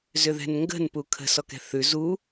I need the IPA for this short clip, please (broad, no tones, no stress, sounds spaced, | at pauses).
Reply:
z ʏ ð ɛ̤ n ŋ ɡ ə̤ n p u kʰ ə̤ s ɔ k ɛ̤ θ ʉ z u